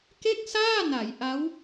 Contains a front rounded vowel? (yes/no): no